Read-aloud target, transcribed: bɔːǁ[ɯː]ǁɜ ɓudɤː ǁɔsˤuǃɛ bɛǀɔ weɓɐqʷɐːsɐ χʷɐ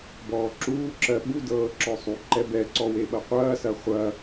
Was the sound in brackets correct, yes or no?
no